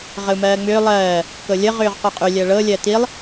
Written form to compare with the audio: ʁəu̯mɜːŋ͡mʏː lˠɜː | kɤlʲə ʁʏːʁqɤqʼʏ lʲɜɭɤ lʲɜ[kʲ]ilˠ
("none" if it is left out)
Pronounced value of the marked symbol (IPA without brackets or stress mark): t